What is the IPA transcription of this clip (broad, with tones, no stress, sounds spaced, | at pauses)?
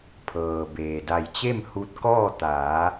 pʰ ɤː˩ b eː˩ d a˧˩ j t͡ɕ e˥˨ m h u˧ t̚ k ɔː˥˨ t̪ aː˩˧